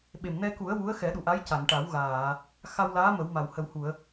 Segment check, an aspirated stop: absent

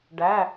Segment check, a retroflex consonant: present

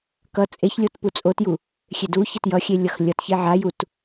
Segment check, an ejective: present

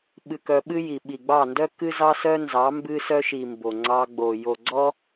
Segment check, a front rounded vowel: present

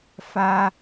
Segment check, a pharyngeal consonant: absent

